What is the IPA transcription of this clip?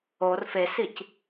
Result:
or fesic

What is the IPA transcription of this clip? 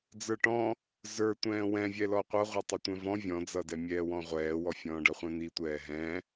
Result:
d͡zə˞ʈɔ̃ | zə˞tʷɛ̃ː wɛ̃vʲɛlɔ qʷʌʁʷə˞tˤɪtʷɛ̃ vɔ̃ vʲɔ̃d͡zʌdɛ mʲɛːwɔ̃ʁʷɛːwɔ fʲɔ̃ːɖʌχʷɛ̃n̪i tʷɛːɦɛ̃

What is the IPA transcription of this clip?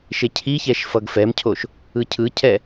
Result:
ʃecʰiçɛʃ fʌɡfɛmcʰoʃ | ɯcʰɯcʰɛ

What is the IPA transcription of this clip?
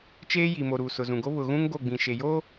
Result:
t͡ʃeː˦ji˨mo˨ ɾuː˨sʊ˨zũ˨ɡo˦ βʊ˨ɣũ˦ŋ ɡo˦˨ɡ͡bĩ˨ ʃe˨joː˦

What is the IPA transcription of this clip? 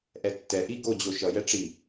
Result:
ʔɛtːɛʔi ɡod͡ʑo ʃʌjɛ ʈ͡ʂi

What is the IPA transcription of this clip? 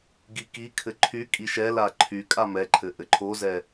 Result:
ɡikikʰɘ ǃʰy kʼiʃɛla ǃʰy kʼamɛǃʰɘ ʔɘǃʰozɛ

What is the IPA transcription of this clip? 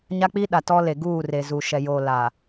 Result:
ɲa˦k͡pi˦ɗa˨ tɔ˦le˨ ɡuː˦˨ re˨zu˨ʃɛ˨jo˨ la˨

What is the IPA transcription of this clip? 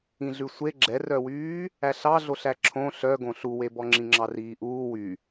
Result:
ĩɮʉsʷe ɡ͡ǁɛrœwyː | æɬɑɮoɬæ ǁʰõ ɬœɡõ ɬuwebɔ ŋ͡ǁĩŋ͡ǁɑriːʔuː wy

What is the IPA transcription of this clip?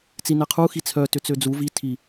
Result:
t͡sinɛqʰu xit͡sʰœ tʏt͡sød͡zu vi tʰi

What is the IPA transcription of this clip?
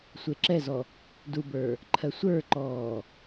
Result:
sʷeǁɛzɔ | dubə˞ | ǃʰɜsʷə˞ǃɔː

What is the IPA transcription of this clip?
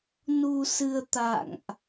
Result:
nu˧sɨ˧ə̯ t̪a̰˧˨ŋʔ

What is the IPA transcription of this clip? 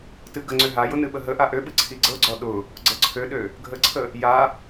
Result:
tɨɡəŋ͡ǀø ɦajʊ nɨɓəɦəʔa ʔøɓɨ ǀʰiɡ͡ǀɤɡ͡ǀɔ ɗʊ | ɡ͡ǀɤǀʰøɗø | ɡʱəǀʰə | ja

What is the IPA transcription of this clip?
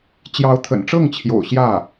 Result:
t͡ɕjɑ˧˥ʊ̯t̪ʰə̰˨˩nʈ͡ʂɤ˥˩ŋt͡ɕʰjo̰˨˩ʊ̯ ɕjä˥˩

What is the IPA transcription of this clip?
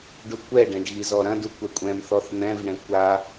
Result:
ɖukʷɛɖɛ̃ɖ ɣizɔɾɐ̃du kʷɛkʷʼɛ̃mθɔθ n̪ɛ̃vɳɛ̃ kʷa

